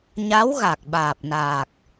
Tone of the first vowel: rising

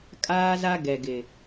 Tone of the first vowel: high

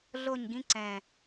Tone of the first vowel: falling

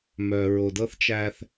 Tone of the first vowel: low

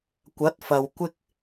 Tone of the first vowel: rising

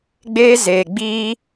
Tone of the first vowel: high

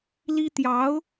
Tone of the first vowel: high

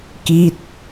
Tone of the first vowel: falling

